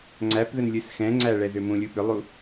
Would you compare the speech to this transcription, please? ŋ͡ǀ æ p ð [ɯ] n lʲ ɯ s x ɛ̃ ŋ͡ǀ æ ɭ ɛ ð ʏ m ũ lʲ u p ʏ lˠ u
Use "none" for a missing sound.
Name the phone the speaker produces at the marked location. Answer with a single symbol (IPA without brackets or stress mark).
ə